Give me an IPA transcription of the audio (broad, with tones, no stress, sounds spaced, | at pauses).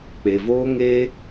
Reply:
k͡p e˨ v oː˦ ŋ eː˦